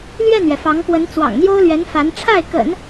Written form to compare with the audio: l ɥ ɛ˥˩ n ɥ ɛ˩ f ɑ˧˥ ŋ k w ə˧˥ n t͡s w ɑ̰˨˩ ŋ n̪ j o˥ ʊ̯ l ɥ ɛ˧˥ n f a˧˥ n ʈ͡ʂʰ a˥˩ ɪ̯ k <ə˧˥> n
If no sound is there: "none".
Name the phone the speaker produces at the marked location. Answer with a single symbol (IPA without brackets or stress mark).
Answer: ə̰˨˩˦